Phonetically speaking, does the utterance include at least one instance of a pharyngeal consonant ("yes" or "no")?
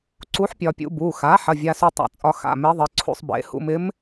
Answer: yes